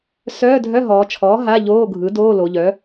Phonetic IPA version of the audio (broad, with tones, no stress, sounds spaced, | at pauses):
s œː˧˥˧ dʱ œ˧˥˧ ɦ ɔː˩˧ t͡ʃʰ ɔː˩˥ ɦ a˧˥˧ ʎ oː˧˥˧ ɡʱ ɯ˩˥ d oː˧˥˧ l o˩˧ ʎ œ˩˥